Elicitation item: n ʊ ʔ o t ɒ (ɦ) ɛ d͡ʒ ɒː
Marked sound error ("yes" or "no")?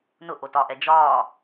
yes